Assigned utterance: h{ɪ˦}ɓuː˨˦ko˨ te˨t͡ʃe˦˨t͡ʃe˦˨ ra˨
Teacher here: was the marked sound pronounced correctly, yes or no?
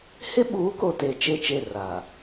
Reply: yes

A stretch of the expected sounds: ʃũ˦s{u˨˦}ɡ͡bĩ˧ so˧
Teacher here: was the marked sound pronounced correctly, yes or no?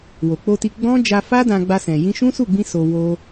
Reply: no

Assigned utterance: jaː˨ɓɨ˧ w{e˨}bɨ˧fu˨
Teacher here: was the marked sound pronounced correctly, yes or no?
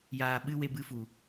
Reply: no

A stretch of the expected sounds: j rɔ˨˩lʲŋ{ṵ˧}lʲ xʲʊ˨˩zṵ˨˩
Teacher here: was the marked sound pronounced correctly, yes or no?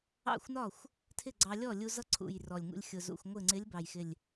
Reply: yes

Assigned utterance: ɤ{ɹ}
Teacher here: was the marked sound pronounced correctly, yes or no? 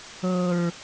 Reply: yes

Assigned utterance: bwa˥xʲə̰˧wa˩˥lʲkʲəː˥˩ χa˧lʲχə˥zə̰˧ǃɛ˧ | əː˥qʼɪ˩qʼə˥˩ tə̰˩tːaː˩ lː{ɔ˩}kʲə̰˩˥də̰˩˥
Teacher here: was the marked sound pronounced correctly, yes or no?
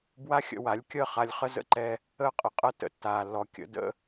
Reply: yes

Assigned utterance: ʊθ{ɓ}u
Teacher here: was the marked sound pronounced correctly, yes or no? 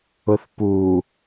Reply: no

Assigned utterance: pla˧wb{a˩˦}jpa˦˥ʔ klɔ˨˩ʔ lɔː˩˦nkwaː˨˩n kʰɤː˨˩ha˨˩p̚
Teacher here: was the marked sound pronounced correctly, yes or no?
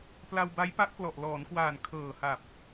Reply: no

